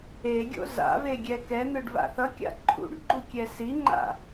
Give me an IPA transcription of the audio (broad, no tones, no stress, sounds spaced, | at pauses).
e ɡʲ o̰ z a̰ v e ɡʲ ɛ k ɛ n̪ ɯ ɖ v a̰ θ ʌ kʲ a̰ ǃʰ ṵ ɖ ɡ͡ǃ u kʲ ɛ s i ŋ͡ǃ a̰